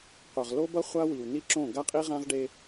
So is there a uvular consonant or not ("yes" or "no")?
yes